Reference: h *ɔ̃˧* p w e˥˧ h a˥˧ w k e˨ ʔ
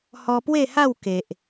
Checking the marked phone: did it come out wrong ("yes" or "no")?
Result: yes